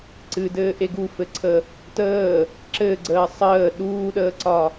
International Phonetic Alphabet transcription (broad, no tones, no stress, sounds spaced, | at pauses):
ǀ ɨ d ɘː ʔ e ɡ u f ɘ ǀʰ ə | t əː | ǁ ɘ ɡ͡ǀ əː sˤ əː ɗ uː ɗ əː ǀ ɒ